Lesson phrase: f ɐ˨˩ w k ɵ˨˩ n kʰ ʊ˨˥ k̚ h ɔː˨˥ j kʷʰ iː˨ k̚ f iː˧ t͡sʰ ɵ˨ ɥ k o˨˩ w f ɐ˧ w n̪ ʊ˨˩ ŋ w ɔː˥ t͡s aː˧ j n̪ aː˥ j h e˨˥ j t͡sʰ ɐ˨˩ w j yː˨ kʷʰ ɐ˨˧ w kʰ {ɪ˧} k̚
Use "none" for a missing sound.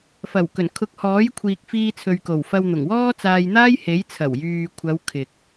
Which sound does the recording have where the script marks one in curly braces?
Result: ɪ˨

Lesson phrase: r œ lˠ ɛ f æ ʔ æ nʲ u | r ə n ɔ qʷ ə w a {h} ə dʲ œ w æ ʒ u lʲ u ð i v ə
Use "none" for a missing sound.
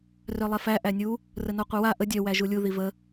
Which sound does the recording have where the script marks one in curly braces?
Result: ʔ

